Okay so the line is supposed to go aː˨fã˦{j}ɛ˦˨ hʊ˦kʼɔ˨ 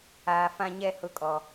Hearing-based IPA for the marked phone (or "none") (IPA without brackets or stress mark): ɲ